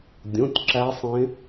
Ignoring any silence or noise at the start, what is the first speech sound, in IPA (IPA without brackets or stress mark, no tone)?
dʲ